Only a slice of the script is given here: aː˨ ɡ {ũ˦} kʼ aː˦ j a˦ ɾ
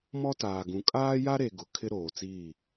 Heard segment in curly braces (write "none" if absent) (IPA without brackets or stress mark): ũ˨